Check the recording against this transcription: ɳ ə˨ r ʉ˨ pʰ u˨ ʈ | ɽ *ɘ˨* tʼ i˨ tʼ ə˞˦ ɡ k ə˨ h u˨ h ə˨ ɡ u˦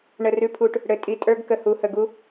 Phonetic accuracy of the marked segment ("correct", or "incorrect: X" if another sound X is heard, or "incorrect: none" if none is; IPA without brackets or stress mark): correct